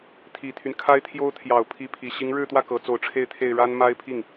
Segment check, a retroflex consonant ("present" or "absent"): present